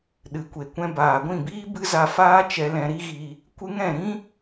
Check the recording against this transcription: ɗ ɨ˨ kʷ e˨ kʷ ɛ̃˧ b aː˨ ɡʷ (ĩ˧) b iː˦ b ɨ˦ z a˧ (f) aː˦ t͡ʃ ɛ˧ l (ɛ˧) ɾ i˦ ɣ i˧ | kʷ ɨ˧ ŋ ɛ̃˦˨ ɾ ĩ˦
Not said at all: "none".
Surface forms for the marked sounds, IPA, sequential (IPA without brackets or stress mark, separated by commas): ĩ˦˨, f, ɛ̃˧